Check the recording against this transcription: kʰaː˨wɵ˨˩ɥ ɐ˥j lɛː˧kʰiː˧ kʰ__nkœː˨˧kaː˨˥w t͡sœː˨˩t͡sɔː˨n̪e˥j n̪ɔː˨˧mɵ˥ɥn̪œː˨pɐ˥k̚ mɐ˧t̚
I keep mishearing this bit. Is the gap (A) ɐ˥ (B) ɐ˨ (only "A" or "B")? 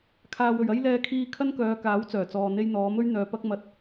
A